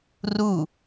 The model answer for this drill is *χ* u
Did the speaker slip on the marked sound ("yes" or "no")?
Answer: yes